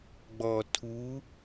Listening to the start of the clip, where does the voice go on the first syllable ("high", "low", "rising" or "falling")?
low